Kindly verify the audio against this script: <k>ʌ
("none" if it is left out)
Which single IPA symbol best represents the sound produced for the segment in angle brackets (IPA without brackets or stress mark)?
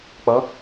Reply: k͡p